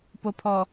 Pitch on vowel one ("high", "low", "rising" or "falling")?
low